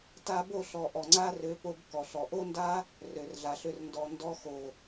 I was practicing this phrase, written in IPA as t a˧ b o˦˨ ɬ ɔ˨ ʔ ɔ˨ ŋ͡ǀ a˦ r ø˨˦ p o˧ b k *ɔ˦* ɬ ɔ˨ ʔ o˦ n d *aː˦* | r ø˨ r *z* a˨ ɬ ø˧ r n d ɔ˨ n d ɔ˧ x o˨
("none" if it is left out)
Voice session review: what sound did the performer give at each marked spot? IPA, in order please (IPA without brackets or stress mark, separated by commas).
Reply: ɔ˨, a˦, ɮ